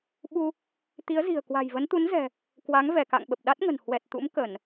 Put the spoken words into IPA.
ɓu˧ | t̪i˨˦ə̯zi̤˨˩ə̯ kwa̤˨˩jvə˨˦nt̪u˨˦nzɛ̤˨˩ | kwa˨˦ŋvɛ˧˩ka̰˧˨ŋ ɓə˨˩p̚ɗa˦˥t̚ŋə̤˨˩n hwɛ˨˩t̚t̪ṵ˧˥m kə˧˩˨n

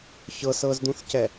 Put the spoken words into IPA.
çɤsɤzd̪ũθcɛ

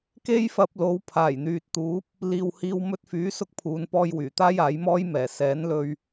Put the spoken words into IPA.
ke˥jfɐ˧p̚lo˨˧w pʰaː˨˩jn̪yː˨t̚t̪uː˨˥p̚ | liː˨whiː˧w mɵ˧t̚fyː˨˥sʊ˧k̚ pʰuː˨˧npɔː˧jwyː˨˩t̪aː˥j aː˨˥jmɔː˥jmɛː˨˩ sɛː˨˥nlɵ˧ɥ

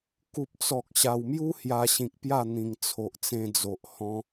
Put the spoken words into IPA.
ku˨p̚t͡sɔ˨k̚ ɕa˨˩wmju˦ hja˧ɕĩ˨k̚pja˥˧ n̪ĩ˨˩ŋt͡sʰo˨ʔt͡sẽ˧d͡zo˨ʔ hɔ̃˧

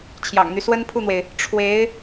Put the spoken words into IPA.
t͡ɕʰjɑ̰˨˩ŋn̪y˦ swə˥n pʰu˥˩n̪we˩ɪ̯ | ʈ͡ʂʰwe˧˥ɪ̯

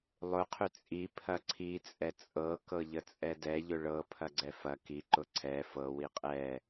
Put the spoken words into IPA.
lˠʊ qʰʏt͡sʼi pʰɐǀʰi t͡sʼɛt͡sʼɤ kɤʎət͡sʼɛdɛ ʎʊɭɤ pʰɐɡ͡ǀɛfɐ ki ǃʊǀʰɛ fɤ wiqʼɛ

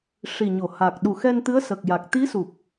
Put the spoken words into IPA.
ʂi˨˩ɲo˨˩˨ha˨˩k̚ ɗu˨˩xɛ˧nt̪ɨ˧˥ə̯ sə˨˩k̚ja˨˩k̚ t̪i˧˥su˨˩p̚

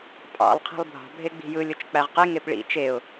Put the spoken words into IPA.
pʼɑ̰lˠ qʰi̤lˠbʱɑ̤ bʱeɡ͡bi̤jɯ lʲot͡ʃk͡pæʁqe ŋepɭḭ t͡ʃeʊ̯

